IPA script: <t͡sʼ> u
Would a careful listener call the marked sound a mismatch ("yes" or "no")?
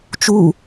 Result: yes